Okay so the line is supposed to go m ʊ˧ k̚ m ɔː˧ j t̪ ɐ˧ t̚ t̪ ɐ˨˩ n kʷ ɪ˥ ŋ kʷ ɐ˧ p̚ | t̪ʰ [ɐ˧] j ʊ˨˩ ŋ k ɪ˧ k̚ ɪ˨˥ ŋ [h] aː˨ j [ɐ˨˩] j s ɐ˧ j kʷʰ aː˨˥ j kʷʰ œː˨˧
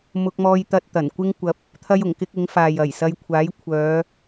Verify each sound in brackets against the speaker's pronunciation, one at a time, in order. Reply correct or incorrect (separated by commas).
correct, incorrect, correct